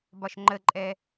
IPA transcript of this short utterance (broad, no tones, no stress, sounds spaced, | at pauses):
b ɒ ʃ ŋ͡ǃ ə ǃʼ ɛ